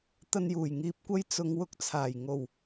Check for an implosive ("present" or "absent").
absent